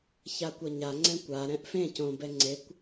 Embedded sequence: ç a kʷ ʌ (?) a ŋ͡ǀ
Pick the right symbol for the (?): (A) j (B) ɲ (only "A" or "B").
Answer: B